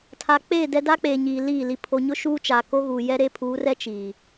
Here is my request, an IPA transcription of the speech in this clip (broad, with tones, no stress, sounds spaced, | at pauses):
tʰ a˨ k͡p eː˦˨ d ɛ˦ d a˦ k͡p eː˨ ɲ iː˨ l iː˦˨ l i˨ pʰ o˨ ɲ ʊ˦ ʃ uː˦ t͡ʃ aː˨ k o˦ ɣ uː˨ j ɛ˦ ɾ e˦ pʰ uː˨˦ r ɛ˦ t͡ʃ iː˨